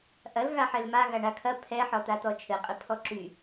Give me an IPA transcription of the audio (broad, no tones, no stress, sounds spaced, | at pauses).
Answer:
ʔ ɐ l ɣ a ħ ɘ l m a ɣ a ɳ a kʰ ɐ pʰ ɛ ħ ɔ t̪ a t̪ ɔ t͡ʃʰ ɘ qʼ ɘ pʰ ɔ ǁ y